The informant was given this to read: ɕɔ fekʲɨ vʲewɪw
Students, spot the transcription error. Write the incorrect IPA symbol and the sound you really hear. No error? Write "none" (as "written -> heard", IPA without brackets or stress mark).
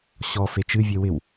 kʲ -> t͡ʃ